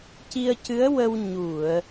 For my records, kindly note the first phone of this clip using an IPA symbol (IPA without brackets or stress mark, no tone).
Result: c